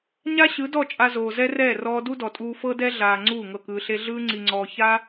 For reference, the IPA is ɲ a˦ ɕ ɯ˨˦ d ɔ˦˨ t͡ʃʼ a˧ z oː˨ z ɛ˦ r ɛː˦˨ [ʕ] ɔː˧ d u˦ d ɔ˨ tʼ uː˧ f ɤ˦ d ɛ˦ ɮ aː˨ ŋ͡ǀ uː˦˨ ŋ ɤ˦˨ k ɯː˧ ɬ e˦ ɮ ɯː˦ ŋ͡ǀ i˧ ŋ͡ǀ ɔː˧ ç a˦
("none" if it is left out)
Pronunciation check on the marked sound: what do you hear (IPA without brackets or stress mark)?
r